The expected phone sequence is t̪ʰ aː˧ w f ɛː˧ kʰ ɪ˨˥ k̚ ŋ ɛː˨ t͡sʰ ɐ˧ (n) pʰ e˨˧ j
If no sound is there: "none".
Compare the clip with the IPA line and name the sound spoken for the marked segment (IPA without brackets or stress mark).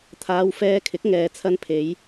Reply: n